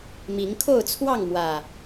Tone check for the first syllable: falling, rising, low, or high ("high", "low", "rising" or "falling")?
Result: rising